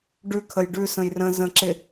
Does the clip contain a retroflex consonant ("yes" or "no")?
yes